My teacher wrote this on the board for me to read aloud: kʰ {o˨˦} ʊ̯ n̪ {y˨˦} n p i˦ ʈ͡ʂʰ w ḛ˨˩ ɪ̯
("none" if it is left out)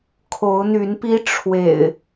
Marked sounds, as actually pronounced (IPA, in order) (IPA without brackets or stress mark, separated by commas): o˨˦, y˨˦